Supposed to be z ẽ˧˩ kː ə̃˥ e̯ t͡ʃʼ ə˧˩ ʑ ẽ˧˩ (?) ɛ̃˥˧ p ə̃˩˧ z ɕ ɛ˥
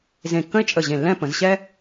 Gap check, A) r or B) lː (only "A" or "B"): B